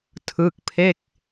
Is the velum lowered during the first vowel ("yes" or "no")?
no